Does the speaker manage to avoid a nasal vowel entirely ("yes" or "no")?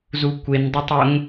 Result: yes